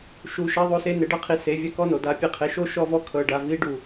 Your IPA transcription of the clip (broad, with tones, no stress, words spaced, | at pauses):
ʃu˧ ʃɛ˦ðˤo˦se˦ ne˨˦ɖɤ˦qʰi˨˦ se˨˦vʲɛ˦kɔ˦no˨ da˨pʲe˧qʰe˨ʃo˦ ʃɔ˧vɔ˧ kʰɤ˨ɖa˨ vi˨˦ɖu˨